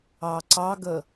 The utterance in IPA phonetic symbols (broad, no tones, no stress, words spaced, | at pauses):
ɑǀɑɡə